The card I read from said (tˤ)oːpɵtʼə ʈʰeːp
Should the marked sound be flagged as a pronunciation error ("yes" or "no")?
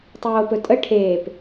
no